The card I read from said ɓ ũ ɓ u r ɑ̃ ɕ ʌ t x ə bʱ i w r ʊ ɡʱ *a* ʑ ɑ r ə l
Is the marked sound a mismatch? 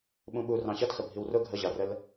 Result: yes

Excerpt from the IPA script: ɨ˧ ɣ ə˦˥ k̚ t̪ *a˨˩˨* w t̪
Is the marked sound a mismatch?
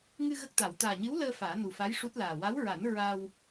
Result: no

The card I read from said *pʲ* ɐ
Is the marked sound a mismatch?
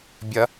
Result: yes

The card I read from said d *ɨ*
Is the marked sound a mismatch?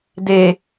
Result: yes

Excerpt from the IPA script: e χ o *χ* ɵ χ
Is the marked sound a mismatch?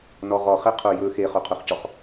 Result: yes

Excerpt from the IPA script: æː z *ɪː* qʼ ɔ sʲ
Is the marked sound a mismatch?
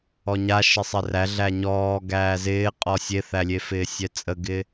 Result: no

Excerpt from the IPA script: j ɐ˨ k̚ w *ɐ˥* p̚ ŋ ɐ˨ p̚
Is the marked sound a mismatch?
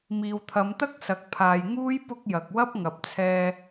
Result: no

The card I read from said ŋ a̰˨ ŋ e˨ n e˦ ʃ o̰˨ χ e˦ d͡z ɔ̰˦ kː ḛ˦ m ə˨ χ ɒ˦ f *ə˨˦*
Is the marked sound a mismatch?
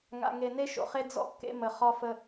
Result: yes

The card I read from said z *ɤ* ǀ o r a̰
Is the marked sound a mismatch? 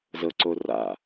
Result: no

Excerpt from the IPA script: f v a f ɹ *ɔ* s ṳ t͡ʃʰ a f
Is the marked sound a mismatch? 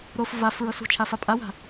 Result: yes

